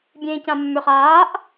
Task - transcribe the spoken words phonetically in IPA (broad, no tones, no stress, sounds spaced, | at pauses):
bʲ ẽː c ã mː ø χ aː ʔ